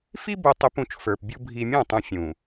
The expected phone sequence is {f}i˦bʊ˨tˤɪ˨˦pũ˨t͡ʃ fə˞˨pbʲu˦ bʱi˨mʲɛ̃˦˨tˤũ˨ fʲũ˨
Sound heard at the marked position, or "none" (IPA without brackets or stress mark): f